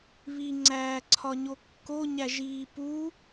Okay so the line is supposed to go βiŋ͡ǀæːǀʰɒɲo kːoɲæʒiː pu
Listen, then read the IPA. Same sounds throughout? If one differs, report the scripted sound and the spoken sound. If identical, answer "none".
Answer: none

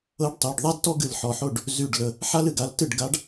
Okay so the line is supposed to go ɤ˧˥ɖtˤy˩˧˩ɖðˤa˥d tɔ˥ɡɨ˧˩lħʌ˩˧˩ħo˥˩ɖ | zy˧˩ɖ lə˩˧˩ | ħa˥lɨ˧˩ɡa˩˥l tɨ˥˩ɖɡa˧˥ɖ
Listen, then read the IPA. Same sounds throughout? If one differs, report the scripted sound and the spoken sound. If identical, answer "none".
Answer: ʌ˩˧˩ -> ɔ˩˧˩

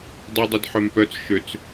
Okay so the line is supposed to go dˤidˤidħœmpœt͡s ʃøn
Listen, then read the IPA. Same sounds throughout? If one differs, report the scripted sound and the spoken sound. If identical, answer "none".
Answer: n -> t͡s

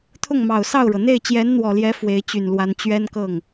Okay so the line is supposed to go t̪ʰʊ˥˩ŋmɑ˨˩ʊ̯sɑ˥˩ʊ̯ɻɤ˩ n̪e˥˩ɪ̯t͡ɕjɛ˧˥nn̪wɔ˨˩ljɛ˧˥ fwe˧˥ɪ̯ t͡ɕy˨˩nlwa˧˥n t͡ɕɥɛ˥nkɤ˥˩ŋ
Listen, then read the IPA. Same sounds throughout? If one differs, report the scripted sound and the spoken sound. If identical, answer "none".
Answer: none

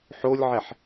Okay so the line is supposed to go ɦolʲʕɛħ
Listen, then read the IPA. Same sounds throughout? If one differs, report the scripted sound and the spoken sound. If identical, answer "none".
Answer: ɦ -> ħ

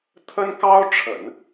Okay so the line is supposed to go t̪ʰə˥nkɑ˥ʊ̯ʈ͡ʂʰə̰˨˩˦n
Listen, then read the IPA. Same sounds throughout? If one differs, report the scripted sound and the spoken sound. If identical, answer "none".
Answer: none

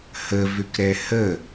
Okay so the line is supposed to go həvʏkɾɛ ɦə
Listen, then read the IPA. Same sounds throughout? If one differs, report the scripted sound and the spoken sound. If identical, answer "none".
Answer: ɦ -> h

